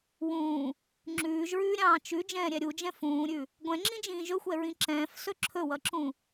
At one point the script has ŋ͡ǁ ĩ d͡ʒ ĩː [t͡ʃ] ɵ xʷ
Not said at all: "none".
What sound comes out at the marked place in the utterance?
ʒ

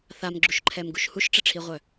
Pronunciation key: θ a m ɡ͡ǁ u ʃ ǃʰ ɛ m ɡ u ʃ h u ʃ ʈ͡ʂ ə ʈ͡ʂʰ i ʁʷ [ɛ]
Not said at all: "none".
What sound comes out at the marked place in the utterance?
œ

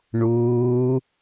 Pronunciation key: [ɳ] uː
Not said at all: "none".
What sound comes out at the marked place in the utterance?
ɳ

